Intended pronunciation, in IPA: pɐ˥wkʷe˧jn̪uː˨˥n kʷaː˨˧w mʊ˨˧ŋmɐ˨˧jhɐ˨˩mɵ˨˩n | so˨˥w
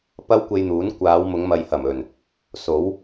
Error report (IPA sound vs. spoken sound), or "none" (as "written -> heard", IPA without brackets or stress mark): none